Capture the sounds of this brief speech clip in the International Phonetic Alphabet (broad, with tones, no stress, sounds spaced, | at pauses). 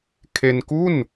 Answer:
kʰ e˧ n k u˥˩ n